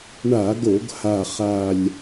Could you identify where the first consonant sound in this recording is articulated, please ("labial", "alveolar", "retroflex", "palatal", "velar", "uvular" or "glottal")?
retroflex